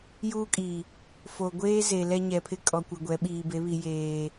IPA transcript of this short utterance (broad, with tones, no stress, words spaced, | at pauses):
juː˦kʼiː˨ | fo˨ɡʷeː˦ze˨ lɛ˦ɲɛ˨pʰɪ˦ kʼɔ˨kʷɪ˨ ɡʷɛ˨˦ɓiː˨be˨˦βi˨ jeː˨